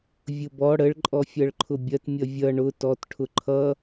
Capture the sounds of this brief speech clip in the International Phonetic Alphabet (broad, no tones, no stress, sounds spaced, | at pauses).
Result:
vʲ ʊ b ɔ ɽ ə ɭ ǃʼ ɔ fʲ ʌ ɭ ǃʰ ʊ bʲ ɐ t mʲ ʌ vʲ ʌ ɳ ʊ t ɔ t ʈʰ ʊ ǃʰ ʌ